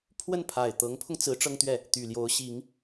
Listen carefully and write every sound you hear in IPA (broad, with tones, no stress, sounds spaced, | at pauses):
pʰ w ə˥˩ n pʰ a˨˩ ɪ̯ t̪ ɤ˧˥ ŋ pʰ ʊ˧ ŋ t͡s ɹ̩˧˥ ʈ͡ʂ ɤ˥ ŋ t̪ ɥ ɛ˥˩ | t̪ y˨˩ l j o˧˥ ʊ̯ ɕ i˧˥ ŋ